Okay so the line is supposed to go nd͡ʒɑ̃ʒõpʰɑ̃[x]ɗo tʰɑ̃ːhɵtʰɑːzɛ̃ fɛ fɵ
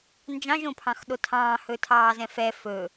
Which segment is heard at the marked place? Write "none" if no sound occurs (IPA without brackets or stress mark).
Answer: x